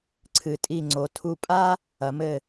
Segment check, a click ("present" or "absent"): present